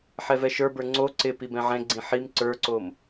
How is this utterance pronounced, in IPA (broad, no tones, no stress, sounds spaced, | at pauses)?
ħ ɛ v ɛ ʃ ə˞ b ə˞ ŋ͡ǀ o ǀ ɪ p i b ɛ̃ ʕ ɛ̃ ɡ͡ǀ ĩ ħ i m ǀ ə˞ ǀ o m